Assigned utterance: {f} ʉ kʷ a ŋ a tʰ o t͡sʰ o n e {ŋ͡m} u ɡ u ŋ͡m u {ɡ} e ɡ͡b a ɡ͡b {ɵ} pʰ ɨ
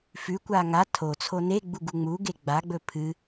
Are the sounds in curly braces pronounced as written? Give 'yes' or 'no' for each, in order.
yes, no, yes, yes

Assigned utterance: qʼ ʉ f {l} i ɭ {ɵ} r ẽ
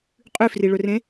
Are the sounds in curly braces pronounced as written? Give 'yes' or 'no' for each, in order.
no, yes

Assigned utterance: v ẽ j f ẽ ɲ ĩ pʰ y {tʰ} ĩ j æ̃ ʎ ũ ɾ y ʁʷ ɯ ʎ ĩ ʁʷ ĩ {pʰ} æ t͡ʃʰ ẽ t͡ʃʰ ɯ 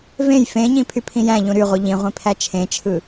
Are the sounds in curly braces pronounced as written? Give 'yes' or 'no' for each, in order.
no, yes

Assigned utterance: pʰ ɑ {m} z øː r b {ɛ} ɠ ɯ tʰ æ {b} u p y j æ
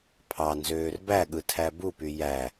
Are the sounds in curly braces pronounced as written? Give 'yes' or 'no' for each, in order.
no, no, yes

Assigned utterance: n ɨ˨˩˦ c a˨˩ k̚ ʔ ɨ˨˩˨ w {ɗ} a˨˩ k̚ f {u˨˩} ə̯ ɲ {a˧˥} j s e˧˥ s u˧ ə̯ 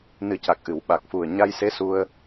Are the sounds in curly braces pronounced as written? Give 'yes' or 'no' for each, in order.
no, yes, no

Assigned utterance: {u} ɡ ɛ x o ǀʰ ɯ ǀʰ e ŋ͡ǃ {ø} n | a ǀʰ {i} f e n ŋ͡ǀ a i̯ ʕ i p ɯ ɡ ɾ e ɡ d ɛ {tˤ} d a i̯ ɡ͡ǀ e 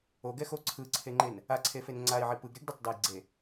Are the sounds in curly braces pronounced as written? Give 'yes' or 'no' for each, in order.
no, no, no, yes

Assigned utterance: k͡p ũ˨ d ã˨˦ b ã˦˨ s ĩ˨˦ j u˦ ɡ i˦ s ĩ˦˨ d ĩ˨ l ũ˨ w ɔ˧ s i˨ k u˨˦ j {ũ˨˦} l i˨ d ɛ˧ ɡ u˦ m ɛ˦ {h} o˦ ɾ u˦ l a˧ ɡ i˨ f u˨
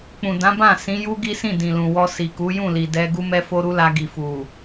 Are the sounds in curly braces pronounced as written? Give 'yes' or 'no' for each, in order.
no, no

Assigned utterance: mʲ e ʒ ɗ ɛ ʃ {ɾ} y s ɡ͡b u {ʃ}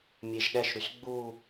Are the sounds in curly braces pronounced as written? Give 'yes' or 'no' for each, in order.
yes, no

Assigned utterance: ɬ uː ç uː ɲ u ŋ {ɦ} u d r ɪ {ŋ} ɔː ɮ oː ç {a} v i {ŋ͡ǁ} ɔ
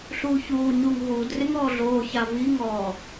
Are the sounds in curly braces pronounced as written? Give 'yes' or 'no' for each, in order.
yes, yes, yes, no

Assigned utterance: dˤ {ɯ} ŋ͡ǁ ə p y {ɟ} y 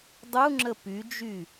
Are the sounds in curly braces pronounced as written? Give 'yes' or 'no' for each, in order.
no, no

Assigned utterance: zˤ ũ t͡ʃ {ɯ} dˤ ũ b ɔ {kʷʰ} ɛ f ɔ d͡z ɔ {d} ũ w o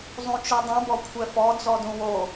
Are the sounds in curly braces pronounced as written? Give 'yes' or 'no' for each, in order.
yes, yes, yes

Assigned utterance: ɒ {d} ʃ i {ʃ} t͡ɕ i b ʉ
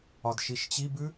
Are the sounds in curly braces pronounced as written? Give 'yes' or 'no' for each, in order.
yes, yes

